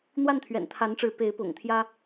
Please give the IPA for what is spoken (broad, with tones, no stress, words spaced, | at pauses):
n̪wa˥˩nt̪ʰɥɛ̰˨˩nt̪ʰa˧˥nʈ͡ʂɻ̩˧˥ pe˧˥ɪ̯pʊ̰˨˩ŋt̪ʰjä˥